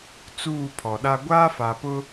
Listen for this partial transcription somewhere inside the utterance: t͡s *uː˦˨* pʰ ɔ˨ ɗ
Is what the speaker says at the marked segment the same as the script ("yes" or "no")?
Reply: yes